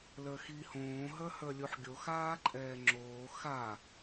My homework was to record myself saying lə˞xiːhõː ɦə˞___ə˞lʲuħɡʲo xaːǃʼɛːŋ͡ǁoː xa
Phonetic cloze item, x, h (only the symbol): h